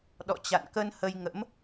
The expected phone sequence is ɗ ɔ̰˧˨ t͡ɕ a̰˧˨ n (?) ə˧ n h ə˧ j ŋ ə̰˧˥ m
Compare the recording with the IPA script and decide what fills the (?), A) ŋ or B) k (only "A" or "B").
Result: B